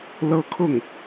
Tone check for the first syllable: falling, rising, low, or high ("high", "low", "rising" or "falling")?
high